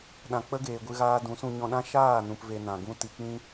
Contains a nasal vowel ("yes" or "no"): yes